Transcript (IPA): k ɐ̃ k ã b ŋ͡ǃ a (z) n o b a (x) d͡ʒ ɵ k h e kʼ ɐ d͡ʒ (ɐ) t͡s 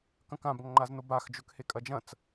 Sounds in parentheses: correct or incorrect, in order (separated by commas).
correct, correct, incorrect